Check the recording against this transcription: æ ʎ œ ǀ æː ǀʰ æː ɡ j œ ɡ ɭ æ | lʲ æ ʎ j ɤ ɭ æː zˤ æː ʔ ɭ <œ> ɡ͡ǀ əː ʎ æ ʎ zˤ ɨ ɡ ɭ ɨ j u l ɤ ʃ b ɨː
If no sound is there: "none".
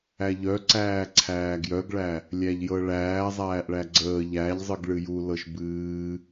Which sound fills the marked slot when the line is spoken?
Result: æ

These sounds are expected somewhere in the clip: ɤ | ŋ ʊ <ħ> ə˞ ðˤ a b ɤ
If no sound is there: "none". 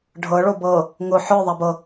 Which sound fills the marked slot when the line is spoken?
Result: ħ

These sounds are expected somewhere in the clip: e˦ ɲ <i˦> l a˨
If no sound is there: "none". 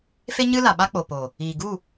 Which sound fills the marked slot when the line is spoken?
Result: ɨ˦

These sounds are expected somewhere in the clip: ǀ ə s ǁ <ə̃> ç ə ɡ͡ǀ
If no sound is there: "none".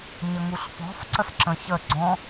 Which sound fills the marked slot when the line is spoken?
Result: ə̃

